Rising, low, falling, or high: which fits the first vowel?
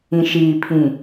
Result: low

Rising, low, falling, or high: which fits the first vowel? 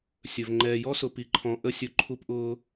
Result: low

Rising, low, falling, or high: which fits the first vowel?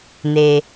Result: low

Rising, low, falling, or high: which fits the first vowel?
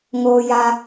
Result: high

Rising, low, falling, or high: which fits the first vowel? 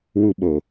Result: high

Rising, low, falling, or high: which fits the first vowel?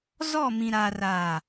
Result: falling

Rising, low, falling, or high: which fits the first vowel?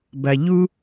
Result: low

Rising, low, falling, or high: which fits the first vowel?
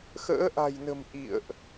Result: rising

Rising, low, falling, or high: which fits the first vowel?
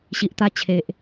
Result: low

